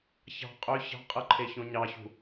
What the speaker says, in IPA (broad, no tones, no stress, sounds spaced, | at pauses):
ç ɑ̤ qʼ ø ç ɑ̤ qʼ ɯ ǃʰ e ç õ ɲ ɑ ç ṳ